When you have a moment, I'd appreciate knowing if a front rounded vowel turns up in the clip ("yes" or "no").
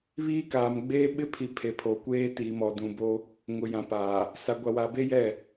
no